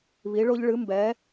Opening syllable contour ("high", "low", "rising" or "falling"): rising